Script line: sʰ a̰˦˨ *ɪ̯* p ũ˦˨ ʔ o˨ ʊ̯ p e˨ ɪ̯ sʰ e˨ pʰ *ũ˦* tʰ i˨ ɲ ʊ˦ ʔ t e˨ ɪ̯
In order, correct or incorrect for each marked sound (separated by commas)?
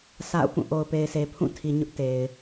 incorrect, incorrect